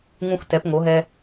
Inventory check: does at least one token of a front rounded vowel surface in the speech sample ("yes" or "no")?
no